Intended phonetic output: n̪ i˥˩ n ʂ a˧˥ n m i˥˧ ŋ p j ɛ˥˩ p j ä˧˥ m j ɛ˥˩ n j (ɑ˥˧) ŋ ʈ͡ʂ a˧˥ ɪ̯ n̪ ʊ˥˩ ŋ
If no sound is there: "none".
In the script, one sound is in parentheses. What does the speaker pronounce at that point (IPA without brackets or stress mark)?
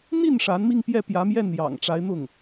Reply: ɑ̰˨˩